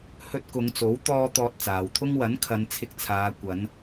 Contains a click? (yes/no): no